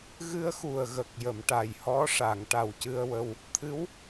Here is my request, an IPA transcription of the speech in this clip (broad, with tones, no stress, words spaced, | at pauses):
ɣɨ˧ə̯xu˨˩ə̯ ɣə˨˩k̚ jə˨˩˨mʈa˨˩jhɔ˧˥ʂa˨˩˨ŋ ʈa˨˩wcɨ˧ə̯wə˧w | t̪ʰɨ˧˥w